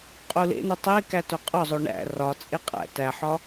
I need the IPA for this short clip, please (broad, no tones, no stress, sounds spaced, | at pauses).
qʼ u l ḛ n u tˤ e k æ t o qʼ ɒ zˤ o ɳ æ̰ r ɒ t͡sʼ e qʼ æ̰ t æ ħ ɒ